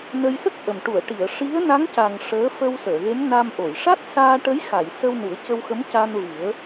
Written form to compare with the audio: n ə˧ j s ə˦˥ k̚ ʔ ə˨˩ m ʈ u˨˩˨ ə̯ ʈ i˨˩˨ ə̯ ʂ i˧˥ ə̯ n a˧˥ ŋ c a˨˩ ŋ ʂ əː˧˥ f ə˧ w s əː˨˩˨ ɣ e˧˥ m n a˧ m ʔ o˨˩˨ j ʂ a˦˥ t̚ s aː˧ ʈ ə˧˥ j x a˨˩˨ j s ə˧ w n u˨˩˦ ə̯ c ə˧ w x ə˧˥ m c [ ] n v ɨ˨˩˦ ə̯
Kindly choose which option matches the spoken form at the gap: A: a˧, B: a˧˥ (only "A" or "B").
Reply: A